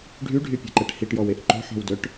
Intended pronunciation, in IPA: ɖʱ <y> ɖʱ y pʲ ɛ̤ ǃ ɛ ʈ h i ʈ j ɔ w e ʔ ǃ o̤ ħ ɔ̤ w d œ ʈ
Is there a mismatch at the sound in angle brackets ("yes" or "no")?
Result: no